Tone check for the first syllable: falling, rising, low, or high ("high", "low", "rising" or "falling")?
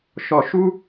low